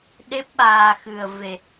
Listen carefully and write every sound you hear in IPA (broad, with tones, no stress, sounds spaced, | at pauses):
ɗ e˦˥ p̚ ɓ aː˧ x ɨ˧ ə̯ v e˧